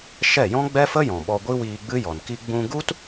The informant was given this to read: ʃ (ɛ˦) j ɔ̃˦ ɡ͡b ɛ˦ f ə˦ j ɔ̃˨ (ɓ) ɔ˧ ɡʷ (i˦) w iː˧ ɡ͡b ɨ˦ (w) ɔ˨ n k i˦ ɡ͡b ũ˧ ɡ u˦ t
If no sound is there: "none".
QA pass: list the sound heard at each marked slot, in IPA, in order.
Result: ɛ˦˨, ɓ, i˦, j

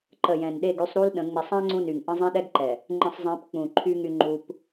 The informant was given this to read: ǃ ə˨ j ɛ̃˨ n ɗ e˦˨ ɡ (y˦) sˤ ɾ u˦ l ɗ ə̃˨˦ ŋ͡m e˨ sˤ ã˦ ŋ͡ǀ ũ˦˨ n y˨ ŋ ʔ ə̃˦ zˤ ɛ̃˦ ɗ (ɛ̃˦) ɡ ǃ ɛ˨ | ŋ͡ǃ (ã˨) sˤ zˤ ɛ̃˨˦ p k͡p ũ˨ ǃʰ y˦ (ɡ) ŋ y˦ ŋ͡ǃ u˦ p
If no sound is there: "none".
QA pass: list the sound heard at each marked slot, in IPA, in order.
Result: y˦, ɛ˦, ə̃˨, none

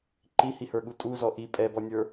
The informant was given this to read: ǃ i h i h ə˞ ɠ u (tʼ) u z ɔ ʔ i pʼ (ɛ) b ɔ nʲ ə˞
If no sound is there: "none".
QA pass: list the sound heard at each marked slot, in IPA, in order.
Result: tʼ, ɛ

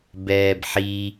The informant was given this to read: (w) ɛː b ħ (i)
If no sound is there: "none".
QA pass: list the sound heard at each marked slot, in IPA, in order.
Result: b, i

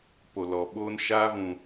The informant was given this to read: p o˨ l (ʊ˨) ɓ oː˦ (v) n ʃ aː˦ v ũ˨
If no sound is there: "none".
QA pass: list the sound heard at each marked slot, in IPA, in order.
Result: ɔ˨, none

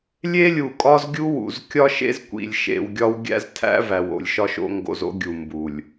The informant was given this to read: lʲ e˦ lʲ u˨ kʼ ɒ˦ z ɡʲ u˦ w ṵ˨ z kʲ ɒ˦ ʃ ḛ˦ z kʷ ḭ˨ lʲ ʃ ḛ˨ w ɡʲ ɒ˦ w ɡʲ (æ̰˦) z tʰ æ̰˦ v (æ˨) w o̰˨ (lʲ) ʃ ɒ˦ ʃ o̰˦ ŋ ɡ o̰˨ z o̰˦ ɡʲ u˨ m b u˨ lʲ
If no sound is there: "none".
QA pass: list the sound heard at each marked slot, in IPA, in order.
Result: æ̰˦, æ˨, lʲ

